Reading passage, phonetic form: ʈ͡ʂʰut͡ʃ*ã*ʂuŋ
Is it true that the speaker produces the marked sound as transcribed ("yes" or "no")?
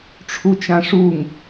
yes